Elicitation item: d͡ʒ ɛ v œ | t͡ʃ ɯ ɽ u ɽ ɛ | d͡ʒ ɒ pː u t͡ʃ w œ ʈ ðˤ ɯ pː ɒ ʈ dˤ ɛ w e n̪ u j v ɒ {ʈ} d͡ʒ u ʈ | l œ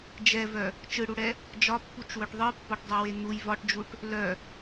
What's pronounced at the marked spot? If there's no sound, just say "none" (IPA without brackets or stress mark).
ʈ